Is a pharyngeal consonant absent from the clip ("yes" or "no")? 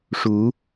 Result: yes